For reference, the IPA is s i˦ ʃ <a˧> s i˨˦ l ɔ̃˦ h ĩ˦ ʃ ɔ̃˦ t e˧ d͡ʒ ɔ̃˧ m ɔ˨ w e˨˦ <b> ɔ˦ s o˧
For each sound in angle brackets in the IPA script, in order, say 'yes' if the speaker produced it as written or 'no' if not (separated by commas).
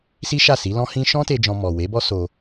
no, yes